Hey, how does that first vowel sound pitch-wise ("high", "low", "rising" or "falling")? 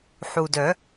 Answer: low